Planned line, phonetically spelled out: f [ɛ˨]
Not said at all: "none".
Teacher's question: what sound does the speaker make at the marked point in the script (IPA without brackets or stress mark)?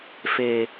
e˨